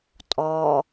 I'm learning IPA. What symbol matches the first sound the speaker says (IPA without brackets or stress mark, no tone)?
tʼ